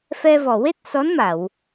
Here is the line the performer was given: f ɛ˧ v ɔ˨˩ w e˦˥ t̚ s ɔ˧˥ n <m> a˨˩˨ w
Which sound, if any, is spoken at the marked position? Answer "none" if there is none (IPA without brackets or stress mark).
m